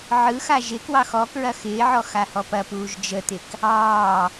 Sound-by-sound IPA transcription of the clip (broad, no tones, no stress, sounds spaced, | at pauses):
ʕ ɯ x a ʒ ɪ k w ɑ x ɔ k ɹ ɐ x ɪː ʕ ɔ x a h ɔ p ɐ p uː ʒ d͡ʒ ə t̪ ɪ k | ɑː